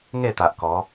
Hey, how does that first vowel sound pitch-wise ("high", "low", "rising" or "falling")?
falling